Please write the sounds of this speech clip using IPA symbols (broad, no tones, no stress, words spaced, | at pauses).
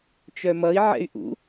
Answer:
t͡ʃœmʌi̯ ʕɛ̰y̯ʔṵ